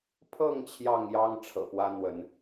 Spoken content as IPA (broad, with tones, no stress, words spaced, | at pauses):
pʰɤ˥˨ŋ t͡ɕʰjɑ˥˨ŋjɑ˦ŋ ʈ͡ʂʰɤ̰˨˩pwä˦n̪wə˨˦n